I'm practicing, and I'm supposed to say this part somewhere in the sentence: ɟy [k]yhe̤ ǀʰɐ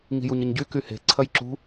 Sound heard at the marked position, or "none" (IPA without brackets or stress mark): k